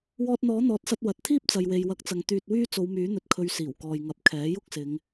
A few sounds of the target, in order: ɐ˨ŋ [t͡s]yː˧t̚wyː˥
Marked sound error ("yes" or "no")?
yes